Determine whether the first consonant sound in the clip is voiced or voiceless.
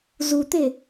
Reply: voiced